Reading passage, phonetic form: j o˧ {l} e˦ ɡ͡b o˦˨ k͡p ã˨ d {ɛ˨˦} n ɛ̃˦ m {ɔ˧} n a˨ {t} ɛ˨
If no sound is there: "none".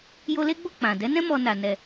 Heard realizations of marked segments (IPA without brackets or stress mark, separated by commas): l, ɛ˨˦, ɔ˧, n